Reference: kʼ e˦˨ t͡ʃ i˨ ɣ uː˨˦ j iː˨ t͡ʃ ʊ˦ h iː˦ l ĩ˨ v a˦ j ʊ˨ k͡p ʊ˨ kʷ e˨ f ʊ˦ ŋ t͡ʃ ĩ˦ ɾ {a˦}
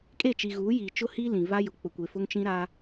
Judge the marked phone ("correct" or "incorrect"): correct